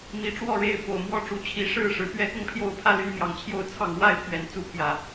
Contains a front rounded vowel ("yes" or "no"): yes